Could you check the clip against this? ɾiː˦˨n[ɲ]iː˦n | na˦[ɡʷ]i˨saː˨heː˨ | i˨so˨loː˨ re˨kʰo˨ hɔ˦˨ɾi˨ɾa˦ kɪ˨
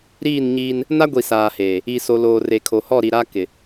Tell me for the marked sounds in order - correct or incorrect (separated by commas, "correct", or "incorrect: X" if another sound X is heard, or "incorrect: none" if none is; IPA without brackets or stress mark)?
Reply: correct, correct